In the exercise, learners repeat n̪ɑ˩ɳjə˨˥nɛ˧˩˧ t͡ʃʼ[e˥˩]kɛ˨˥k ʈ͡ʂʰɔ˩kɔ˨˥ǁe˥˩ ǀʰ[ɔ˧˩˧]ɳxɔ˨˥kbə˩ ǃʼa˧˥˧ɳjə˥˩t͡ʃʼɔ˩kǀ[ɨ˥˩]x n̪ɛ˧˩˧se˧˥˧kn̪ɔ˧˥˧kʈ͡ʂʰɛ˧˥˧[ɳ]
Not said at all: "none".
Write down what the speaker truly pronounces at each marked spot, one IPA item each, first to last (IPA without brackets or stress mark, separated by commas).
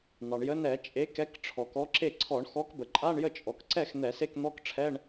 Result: e˨˥, ɔ˧˩˧, ɛ˥˩, ɳ